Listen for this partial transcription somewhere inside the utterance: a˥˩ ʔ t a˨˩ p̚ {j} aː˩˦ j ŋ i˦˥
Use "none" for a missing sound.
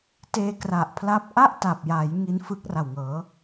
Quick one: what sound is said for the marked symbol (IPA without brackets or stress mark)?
j